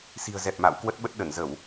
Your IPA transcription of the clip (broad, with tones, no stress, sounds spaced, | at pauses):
s i̤˨˩ ə̯ z ɛ˨˩ p̚ m a̰˧˨ w k w ə˦˥ t̚ ɓ ə˦˥ t̚ ɗ ə˧˩ n z ə˧˩˨ w